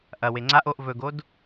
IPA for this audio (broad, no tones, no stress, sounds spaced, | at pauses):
ʔ ɐ w e ŋ͡ǀ a ʔ o ʔ v ɵ ɡ o d